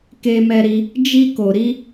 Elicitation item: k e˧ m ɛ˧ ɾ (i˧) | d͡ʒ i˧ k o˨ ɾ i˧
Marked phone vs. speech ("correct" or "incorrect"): correct